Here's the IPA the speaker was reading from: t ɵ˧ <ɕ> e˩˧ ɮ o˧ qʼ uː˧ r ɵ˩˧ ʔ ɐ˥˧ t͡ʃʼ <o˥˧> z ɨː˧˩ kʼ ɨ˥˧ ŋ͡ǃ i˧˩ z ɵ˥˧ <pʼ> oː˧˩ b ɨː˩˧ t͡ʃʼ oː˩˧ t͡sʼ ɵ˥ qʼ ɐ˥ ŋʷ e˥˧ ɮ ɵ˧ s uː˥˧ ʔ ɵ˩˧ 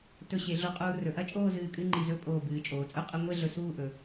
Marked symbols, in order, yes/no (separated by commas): yes, no, yes